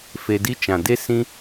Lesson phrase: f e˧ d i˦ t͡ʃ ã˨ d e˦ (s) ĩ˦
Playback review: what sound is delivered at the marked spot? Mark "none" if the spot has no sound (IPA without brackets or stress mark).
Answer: s